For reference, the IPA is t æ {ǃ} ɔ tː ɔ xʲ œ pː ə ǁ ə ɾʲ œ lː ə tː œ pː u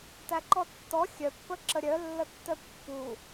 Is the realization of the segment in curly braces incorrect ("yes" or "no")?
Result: no